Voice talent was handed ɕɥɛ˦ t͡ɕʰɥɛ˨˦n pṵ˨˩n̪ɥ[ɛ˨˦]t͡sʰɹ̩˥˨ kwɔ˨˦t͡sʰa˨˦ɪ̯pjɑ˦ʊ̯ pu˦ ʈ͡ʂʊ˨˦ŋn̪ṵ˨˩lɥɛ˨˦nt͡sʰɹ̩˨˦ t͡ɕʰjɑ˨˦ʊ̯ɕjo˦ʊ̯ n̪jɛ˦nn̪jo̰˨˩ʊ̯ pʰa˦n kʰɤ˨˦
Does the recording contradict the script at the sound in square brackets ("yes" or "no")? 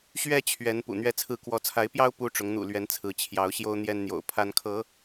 yes